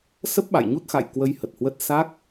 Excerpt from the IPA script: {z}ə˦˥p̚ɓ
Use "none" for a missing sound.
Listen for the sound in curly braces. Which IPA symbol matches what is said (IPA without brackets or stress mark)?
s